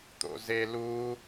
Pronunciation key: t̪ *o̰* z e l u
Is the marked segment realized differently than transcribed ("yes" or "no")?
no